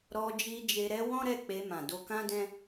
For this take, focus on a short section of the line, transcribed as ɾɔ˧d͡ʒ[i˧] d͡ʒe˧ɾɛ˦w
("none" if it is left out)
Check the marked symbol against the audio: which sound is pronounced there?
i˧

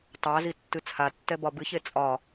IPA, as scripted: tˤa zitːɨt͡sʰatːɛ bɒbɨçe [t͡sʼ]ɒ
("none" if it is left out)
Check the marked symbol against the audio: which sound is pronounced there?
t͡sʼ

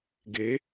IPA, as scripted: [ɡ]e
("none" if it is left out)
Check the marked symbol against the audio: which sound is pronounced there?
ɡ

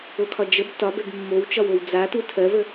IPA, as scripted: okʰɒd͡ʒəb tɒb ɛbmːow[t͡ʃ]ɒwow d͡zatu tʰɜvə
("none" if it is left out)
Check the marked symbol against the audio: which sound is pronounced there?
t͡ʃ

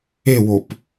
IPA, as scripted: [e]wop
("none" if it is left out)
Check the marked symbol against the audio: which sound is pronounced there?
e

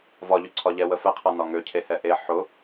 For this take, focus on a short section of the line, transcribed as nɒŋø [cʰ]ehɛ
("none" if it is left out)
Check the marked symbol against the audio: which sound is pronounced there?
cʰ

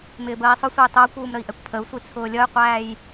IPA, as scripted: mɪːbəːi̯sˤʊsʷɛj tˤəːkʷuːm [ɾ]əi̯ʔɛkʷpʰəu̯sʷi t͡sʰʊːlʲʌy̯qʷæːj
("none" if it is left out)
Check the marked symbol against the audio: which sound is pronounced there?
ɾ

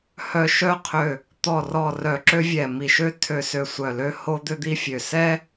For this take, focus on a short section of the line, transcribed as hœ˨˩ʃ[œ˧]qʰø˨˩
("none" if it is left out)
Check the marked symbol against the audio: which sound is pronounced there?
œ˧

